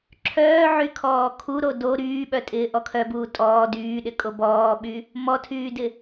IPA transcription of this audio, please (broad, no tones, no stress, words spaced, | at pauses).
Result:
ǁʰœːʕy kʰɔːkʰuɾo do ɾyːɓœ tʼɪːʔɔkʰœbuː tʼɔː dyːɗɪkʼo bɔːɓy | mɔtʰyːdɪ